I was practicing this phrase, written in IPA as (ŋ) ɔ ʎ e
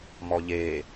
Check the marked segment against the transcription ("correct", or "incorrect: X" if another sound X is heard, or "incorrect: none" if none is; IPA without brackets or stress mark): incorrect: m